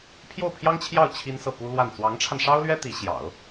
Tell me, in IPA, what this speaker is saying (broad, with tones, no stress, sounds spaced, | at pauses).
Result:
pʰ j o˥˩ ʊ̯ pʰ j ɑ˥ ŋ t͡ɕʰ j ɑ˥˩ ʊ̯ t͡ɕʰ i˥ n s ɤ˥˩ p u˥ l w a˥˩ n t͡s w ɑ˧˥ ŋ ʈ͡ʂʰ a˧ n ʂ ɑ˥ ʊ̯ l ɥ ɛ˥ t̪ i˧˥ ɕ j ɑ̰˨˩˦ ʊ̯